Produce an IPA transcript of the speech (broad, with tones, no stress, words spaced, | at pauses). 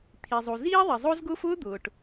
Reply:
t̪ʰi˩zˤu˩ ziː˥ðˤi˩ zˤo˥zɡʊː˥f ʊː˥ d̪ʊː˩ʈ